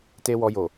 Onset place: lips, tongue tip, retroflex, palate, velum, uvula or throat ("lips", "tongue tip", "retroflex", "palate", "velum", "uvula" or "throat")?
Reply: tongue tip